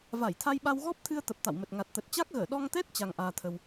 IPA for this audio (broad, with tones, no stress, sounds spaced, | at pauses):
v a˧˩ j t̪ʰ a˧ j ɓ a˧ w ɣ ɔ˦˥ p̚ t̪ʰ ɨ˧ ə̯ t̪ ə˨˩ p̚ t̪ a̰˧˨ w m ə˨˩ t̚ ŋ a˨˩ t̚ t̪ ə˨˩ t̚ t͡ɕ a˦˥ k̚ ɣ əː˧˩ ɗ ɔ˧ ŋ t̪ ɛ˦˥ t̚ t͡ɕ a˧ ŋ ʔ aː˧ t̪ʰ ə˧ w